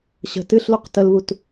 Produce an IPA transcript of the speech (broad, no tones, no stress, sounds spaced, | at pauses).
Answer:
ɕ ə̤ t ɨ ɬ l u q t ə l β u t